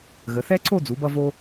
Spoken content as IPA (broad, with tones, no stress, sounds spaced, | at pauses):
ɣ ə˩˧ θ ɛ˥ ǀʰ o˥˧ d͡z u˩˧ b ʌ˧ v o˧